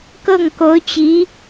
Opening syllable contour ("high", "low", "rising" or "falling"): falling